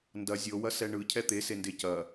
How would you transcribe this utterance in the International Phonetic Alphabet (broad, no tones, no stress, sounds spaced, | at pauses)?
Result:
n d ɐ zʲ ɤ w ɐ s ɛ ɳ ɯ cʰ ɛ t̪ e s e n d e c ɐ